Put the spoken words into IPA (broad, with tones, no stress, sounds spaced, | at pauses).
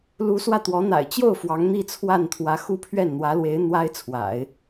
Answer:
l u˧˥ s w ä˥˩ t̪ w ɔ˧˥ n̪ a̰˨˩ ɪ̯ t͡ɕ j o˥˩ ʊ̯ f w ɑ˧˥ ŋ n̪ i˥˧ t͡sʰ w a˥˩ n t̪ʰ w ä˧˥ x u˥ pʰ ɥ ɛ˥˩ n n̪ w ä˧˥ l w e˧˥ ɪ̯ n̪ w a˥ ɪ̯ t͡sʰ w a̰˨˩˦ ɪ̯